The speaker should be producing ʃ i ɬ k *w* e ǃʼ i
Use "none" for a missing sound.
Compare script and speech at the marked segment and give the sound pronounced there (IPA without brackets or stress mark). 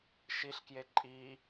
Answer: j